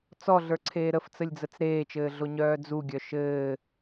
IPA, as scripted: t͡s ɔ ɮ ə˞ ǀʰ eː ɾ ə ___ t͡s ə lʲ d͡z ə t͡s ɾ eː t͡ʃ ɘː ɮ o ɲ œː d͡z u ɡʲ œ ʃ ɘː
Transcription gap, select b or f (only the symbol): f